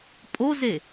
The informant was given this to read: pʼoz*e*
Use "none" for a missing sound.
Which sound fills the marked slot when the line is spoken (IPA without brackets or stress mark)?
e